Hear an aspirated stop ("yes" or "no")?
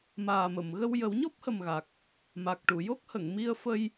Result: no